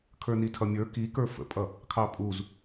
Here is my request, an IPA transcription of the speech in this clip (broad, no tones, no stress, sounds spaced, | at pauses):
kʰ ə˞ n i tʰ ʌ mʲ ə˞ k i k ə˞ f ə̰ pʼ ʌ | kʰ ɑ pʼ u z